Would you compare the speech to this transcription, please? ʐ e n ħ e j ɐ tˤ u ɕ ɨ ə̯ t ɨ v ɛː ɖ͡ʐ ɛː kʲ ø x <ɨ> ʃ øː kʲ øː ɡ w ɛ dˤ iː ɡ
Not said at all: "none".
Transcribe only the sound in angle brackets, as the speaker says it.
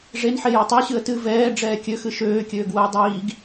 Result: ɨ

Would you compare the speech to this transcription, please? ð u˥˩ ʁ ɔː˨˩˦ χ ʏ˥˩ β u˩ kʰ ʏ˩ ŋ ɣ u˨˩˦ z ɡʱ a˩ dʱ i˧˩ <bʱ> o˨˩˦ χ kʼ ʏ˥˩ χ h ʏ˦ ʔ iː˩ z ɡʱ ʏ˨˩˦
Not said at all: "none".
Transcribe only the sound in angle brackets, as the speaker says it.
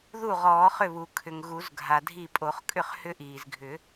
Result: pʼ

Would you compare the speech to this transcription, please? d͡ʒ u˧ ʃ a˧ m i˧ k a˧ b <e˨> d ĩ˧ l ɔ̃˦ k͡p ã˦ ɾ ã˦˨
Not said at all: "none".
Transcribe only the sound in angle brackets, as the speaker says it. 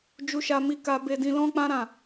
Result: e˧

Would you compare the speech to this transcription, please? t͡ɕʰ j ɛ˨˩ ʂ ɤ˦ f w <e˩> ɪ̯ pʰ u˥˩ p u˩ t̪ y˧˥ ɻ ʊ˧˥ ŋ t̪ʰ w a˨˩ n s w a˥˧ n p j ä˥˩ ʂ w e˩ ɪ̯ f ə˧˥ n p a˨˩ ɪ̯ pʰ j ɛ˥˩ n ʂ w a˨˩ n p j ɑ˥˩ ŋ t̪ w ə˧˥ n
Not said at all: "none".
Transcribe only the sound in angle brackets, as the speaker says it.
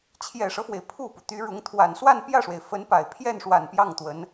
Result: e˩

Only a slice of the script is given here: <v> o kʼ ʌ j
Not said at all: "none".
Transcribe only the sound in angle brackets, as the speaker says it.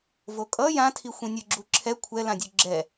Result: v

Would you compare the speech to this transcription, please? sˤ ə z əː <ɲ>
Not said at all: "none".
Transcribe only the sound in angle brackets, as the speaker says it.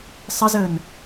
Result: n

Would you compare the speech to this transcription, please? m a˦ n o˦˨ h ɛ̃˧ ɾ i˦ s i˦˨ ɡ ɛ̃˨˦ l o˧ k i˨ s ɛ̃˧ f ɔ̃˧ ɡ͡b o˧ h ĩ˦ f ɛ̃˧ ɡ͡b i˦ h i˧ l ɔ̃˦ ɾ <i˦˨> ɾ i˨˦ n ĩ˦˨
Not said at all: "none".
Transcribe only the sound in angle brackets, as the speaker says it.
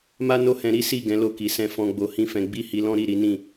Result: i˦˨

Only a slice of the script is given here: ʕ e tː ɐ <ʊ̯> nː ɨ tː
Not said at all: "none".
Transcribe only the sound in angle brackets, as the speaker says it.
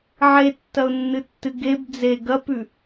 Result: ʊ̯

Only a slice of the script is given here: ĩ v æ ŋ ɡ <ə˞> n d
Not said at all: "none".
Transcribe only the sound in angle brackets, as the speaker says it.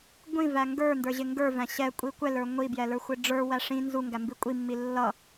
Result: ə˞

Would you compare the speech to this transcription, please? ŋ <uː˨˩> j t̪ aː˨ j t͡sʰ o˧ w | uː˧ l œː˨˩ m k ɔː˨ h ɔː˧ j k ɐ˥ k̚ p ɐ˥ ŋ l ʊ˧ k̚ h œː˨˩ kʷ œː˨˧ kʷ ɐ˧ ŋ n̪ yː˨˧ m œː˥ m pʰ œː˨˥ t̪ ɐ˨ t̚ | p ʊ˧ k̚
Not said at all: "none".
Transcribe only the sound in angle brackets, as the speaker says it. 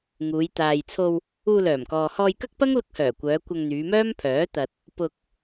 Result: uː˨˧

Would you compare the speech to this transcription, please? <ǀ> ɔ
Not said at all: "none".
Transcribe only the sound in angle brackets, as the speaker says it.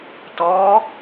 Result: t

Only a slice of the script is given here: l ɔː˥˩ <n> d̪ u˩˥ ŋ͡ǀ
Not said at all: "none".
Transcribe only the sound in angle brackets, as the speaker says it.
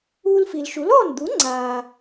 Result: n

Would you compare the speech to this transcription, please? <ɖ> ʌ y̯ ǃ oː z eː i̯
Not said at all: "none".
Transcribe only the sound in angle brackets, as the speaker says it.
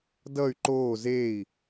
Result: d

